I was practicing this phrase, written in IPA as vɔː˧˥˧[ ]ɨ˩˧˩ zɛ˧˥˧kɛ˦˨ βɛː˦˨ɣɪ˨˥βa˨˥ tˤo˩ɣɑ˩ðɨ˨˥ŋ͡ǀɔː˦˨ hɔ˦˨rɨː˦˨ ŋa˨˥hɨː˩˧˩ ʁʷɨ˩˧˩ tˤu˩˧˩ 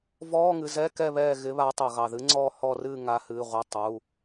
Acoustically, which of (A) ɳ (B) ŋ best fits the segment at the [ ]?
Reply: B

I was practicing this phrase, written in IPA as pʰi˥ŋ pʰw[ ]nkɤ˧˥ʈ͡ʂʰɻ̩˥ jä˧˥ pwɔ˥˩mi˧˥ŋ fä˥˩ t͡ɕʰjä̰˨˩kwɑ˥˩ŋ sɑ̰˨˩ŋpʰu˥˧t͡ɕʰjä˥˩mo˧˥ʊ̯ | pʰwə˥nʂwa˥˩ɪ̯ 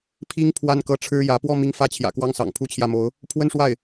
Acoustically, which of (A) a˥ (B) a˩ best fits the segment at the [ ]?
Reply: A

